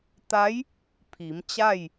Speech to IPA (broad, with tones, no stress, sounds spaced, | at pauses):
t̪ a˧˥ j | pʰ i˩˧ m t͡ɕ a˥˨ j